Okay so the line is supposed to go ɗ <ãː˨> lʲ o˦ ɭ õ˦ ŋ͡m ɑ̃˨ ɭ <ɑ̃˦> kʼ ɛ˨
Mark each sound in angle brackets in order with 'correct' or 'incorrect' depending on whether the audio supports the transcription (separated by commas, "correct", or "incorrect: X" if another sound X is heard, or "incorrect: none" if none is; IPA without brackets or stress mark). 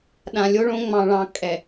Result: incorrect: ã˨, correct